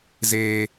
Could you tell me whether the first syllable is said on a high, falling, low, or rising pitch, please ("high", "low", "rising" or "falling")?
high